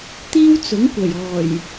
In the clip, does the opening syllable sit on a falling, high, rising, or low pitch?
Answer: high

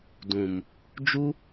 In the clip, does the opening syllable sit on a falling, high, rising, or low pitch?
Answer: low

